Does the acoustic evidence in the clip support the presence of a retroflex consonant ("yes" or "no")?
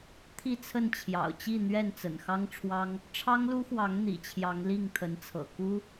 yes